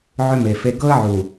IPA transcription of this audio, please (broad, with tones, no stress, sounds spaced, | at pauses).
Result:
ʕ ʏ˦ m e˨ f e˦ ɡ ɤ˦ ə̯ ʕ u˨